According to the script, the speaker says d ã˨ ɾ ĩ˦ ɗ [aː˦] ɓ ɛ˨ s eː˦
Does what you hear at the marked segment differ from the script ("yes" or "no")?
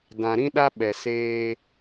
yes